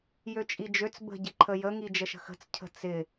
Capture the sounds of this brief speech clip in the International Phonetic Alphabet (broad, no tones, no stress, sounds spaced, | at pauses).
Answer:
j ø t͡ʃʼ i d͡ʒ ø t͡s b ə̤ ɟ ɪ ǃʰ ə j ə ŋ i d͡ʒ ə ʃ ə̤ x ə̤ t͡s cʰ ə̤ t͡s ɪ